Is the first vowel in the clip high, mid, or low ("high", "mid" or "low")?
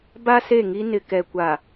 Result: low